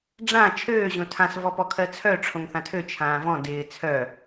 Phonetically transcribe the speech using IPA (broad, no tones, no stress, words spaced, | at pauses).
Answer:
ɖ͡ʐã t͡ʃʰøː ʑõtʰãs vɔpɔkʰɜt͡sʰœ ʈ͡ʂʰõŋθãtʰø t͡ʃʰãːvɔ̃ dɪː t͡sʰœ